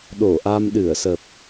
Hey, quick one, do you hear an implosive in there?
yes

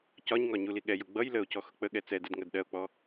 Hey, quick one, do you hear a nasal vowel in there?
no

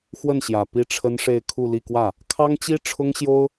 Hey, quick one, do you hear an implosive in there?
no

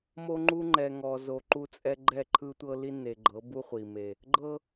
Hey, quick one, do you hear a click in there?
yes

